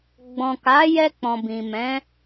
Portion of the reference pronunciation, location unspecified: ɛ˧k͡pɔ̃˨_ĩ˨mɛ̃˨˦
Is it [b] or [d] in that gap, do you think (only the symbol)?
b